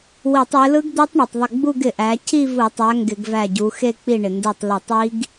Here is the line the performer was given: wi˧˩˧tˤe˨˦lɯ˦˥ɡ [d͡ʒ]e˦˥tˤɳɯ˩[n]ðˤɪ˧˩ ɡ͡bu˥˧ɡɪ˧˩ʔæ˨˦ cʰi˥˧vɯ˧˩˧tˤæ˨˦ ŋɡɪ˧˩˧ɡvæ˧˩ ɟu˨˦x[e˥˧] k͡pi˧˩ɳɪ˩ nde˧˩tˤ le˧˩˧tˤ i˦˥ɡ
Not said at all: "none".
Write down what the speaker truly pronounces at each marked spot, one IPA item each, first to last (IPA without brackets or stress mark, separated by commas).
d̪, tˤ, e˥˧